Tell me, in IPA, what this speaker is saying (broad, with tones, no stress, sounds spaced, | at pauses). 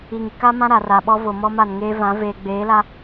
i˨ ŋ i˨ k a˦ m ã˦ ɾ a˨ r a˨ ɓ ɔ˦ v o˨ m ɔ˦ m a˨ n ŋ eː˦ v ã˨˦ v eː˨ ɡ͡b eː˨˦ l a˦